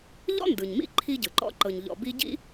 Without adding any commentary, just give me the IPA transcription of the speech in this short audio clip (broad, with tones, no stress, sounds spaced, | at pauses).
ʎ ɔ̰˥ n d ɯ˩ ɲ m ḭ˦ ǃʰ i˦ ɟ ɯ˩ ǃ ɔ̰˥ ǃ ɤ˨ ɲ ʎ ɔ̰˨ b i˦ ɟ ḭ˥